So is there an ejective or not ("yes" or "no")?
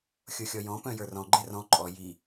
yes